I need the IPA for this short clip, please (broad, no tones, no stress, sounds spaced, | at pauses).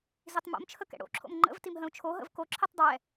z i tˤ m o̰ m t͡ʃʰ ə k ɛ̰ ɽ o̰ ǁʰ o̰ m ŋ͡ǃ ə̰ v t i m ɦ ə̃ u̯ t͡ʃʰ o ɦ ə̰ v k o ǁʰ i tˤ dˤ ɛ